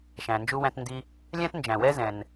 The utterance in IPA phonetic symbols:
ʃ æ̃˩ n d͡ʒ u˥ w æ̃˥ t n d i˥ | lʲ æ̃˥ t n d͡ʒ æ̃˩ w ɛ˥ z ɛ̃˩ n

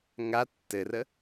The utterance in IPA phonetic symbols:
ŋ a tː ɘ r ə

